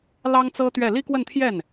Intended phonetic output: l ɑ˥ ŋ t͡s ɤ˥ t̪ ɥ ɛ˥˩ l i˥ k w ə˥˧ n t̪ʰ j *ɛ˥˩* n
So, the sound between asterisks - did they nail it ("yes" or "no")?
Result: yes